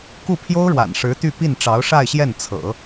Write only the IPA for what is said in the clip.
ku˥˩pʰjo˥ʊ̯ɻwa̰˨˩n ʂɻ̩˧˥t̪y˥˧ pi˥˩nʈ͡ʂɑ˧˥ʊ̯ʂa˥˧ɪ̯ɕjɛ˥˩n t͡sʰɤ̰˨˩˦

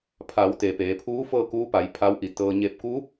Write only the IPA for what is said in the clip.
pʰa˩˧wt̪e˩ peː˩˧pʰuː˧˥ fɤː˥˨kuː˧˥pa˩˧j pʰa˧˥wʔi˧˩t̪ɤː˧ ɲe˧˩p̚kuː˧˥p̚

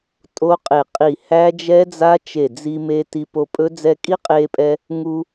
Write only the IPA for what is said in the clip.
tʼo˦˥qʼe˧˩ qʼi˧˩ hæ˦˥d͡ʒɛ˦˥d͡za˦˥ t͡ʃe˧˩d͡zi˧ me˧ ti˧po˧pʼɵ˦˥ d͡zɛ˧kʼi˦˥qʼeː˧pʼɛ˧ | ŋu˧

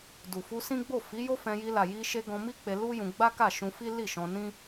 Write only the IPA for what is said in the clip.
du˨fu˧sĩ˦ɡ͡bo˦˨ fi˨˦jo˦fɛ̃˧ji˧ la˨ji˧ʃe˧ ɡɔ̃˧mi˦k͡pe˧ lu˦jũ˧ ɡ͡ba˦ka˦˨ʃũ˧fi˦ li˦˨ʃɔ̃˧nĩ˦

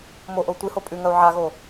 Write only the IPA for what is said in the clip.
moʔou̯ tʷɨ hopʼʉŋɐu̯ ʕaɣo

